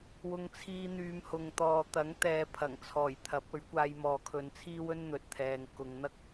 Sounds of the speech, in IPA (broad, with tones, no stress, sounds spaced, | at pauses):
w ʊ˧ ŋ t͡sʰ iː˧ n̪ yː˨˧ m h ʊ˨ ŋ t̪ ɔː˨ t̪ ɐ˨˥ ŋ t̪ ɛː˨˧ pʰ ɐ˨˩ ŋ t͡sʰ ɔː˨˩ j t̪ʰ ɐ˨˥ p̚ ɵ˨˥ ɥ kʷ aː˧ j m ɔː˨ kʰ ɵ˨˧ n t͡sʰ iː˥ w ɵ˥ n n̪ ɵ˨ t̚ t̪ʰ ɛː˨ ŋ k ʊ˨˧ ŋ n̪ ɐ˥ k̚